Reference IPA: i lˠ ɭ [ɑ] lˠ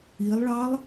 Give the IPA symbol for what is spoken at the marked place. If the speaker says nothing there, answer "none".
ɑ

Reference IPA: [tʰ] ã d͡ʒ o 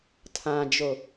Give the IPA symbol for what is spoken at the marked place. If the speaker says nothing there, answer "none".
tʰ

